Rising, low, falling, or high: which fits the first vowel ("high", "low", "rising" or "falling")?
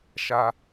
low